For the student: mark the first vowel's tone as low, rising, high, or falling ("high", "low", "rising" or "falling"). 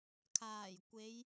low